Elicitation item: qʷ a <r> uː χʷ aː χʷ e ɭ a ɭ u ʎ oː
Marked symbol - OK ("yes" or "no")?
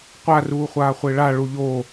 yes